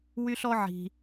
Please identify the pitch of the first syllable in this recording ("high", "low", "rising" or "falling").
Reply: high